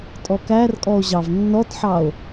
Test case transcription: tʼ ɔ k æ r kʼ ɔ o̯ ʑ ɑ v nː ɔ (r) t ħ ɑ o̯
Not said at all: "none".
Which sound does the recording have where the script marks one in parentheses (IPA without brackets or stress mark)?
none